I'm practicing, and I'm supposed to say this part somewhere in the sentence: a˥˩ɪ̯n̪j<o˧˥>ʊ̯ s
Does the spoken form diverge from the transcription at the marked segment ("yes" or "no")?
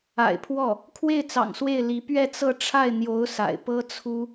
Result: no